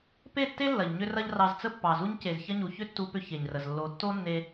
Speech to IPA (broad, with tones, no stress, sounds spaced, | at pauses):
p e˦˨ tː e˦ lː ɐ˨ ʎ ɲ ʏ˦ r ɐ˦ ʎ r ɑ˧ z t͡s ə˦ pː ɑ˨ z u˧ ɲ c e˨ z ç ɐ˦ ɲ u˨ ç ʏ˦ tː u˧ p ʏ˧ ç e˨ ɲ r ə˨ z lː o˧ tː o˦ nː e˧